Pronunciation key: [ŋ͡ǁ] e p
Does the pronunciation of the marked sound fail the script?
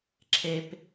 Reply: yes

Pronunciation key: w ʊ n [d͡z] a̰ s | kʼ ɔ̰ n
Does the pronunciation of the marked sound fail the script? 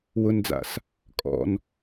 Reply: no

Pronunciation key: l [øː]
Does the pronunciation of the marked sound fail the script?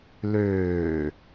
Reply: no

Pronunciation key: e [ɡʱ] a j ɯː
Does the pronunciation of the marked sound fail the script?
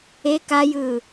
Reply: yes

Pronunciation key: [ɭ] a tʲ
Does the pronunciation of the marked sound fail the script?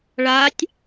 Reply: no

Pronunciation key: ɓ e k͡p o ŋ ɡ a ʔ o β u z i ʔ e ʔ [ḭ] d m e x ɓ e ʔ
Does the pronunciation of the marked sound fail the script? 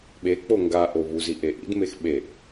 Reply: no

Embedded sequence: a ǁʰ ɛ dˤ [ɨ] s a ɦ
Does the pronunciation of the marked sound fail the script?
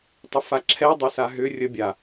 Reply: yes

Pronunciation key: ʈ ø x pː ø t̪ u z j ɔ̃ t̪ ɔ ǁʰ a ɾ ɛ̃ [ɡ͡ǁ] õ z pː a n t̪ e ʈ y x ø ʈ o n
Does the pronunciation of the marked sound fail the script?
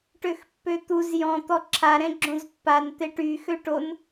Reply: no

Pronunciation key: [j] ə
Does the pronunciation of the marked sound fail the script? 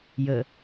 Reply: no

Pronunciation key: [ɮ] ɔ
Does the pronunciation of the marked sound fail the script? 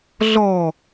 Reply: no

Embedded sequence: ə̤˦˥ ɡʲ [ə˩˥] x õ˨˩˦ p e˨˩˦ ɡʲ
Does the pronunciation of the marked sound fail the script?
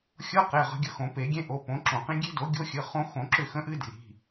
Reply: yes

